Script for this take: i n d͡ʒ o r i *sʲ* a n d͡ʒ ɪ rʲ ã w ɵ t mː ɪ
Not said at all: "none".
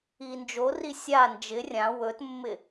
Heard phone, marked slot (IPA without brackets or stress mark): sʲ